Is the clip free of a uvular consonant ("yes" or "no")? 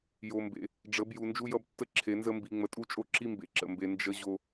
yes